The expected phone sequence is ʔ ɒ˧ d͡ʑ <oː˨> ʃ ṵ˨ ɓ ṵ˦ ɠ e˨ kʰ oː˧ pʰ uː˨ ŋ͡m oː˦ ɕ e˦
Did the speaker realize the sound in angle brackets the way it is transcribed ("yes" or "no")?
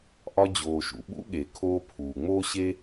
yes